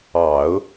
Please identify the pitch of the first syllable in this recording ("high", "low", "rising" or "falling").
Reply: low